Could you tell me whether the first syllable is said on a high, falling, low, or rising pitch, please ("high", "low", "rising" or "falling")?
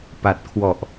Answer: low